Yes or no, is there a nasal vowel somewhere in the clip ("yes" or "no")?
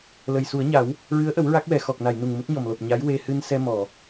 no